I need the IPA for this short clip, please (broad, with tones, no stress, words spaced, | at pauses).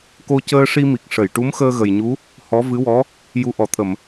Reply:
ko˧cəː˧ʂi˧mi˨˩k̚ ʂə˨˩˨jʈu˧˥mxəː˧ ɣə˨˩jɲu˧˥ | hɔ˧˥vɨ˧˥wɔ˧˥ | ju˧ʔɔ˨˩˦t̪ʰə˨˩˨m